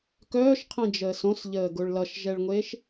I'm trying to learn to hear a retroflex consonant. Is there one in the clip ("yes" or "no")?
yes